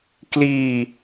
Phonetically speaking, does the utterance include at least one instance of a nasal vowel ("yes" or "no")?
no